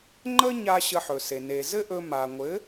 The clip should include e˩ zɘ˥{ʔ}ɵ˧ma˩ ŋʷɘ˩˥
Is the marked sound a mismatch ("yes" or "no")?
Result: no